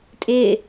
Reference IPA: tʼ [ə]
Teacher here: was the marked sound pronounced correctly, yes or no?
no